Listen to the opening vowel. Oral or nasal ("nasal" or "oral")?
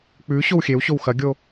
oral